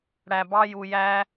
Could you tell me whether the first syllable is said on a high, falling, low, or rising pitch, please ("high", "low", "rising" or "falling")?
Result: low